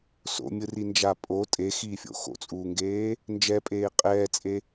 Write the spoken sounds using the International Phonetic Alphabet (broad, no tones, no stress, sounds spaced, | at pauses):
s o̰ mʲ ɯ r i n d͡ʒ a pʼ o tʼ e x iː fʲ o̰ x o̰ t͡sʼ uː ŋ ɡ eː | n d͡ʒ ɛ pʼ eː qʼ ɛː t͡sʼ e